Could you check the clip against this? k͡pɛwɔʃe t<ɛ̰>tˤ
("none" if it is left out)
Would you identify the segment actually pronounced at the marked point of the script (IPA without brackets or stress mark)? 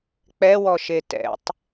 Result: ɛ̰